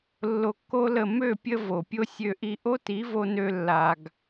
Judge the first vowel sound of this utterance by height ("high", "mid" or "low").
mid